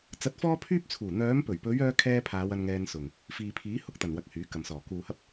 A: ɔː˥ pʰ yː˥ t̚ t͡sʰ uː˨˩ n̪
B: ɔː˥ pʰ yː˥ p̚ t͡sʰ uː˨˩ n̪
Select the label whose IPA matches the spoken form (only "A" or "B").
B